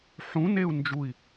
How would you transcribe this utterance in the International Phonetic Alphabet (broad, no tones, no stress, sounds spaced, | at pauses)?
ħ ũ n e u̯ n d͡ʒ u i̯